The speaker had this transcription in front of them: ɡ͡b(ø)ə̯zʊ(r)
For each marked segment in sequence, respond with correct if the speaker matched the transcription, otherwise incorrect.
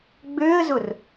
correct, correct

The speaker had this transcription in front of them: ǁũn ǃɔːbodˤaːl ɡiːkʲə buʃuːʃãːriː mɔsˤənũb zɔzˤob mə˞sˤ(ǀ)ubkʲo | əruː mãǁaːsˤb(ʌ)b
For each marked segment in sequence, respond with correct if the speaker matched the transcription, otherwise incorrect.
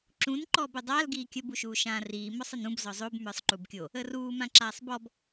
incorrect: ǃ, incorrect: ɔ

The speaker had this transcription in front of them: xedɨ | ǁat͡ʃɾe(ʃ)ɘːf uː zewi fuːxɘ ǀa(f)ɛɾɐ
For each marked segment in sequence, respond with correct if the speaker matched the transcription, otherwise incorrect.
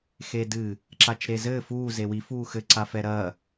incorrect: z, correct

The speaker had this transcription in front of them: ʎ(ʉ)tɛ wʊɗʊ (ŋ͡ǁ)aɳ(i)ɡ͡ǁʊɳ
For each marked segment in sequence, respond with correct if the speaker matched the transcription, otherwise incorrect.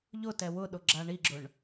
incorrect: ʊ, incorrect: ɡ͡ǁ, correct

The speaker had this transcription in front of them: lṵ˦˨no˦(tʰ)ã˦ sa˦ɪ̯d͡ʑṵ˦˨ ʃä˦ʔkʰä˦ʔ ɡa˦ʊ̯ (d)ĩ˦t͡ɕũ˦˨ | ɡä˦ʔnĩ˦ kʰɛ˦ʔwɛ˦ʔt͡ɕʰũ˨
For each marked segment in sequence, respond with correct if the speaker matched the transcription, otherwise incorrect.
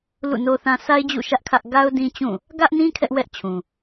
incorrect: θ, correct

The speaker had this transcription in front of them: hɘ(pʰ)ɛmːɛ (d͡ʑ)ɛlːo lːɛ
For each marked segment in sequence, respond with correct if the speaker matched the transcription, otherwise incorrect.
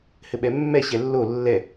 incorrect: ɓ, incorrect: ɕ

